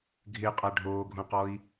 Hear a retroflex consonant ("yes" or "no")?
yes